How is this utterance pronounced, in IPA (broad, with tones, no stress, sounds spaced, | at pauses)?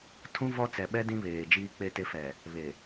tʰ ũ˦ v ɔ˦ t͡s ɛ˨ ɓ ɛ˦ d ĩ˦ β eː˨ d͡ʒ iː˦ k͡p e˦ t e˦ f ɛ˨ | β e˨